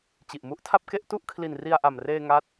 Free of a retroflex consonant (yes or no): yes